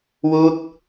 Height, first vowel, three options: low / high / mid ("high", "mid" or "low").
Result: high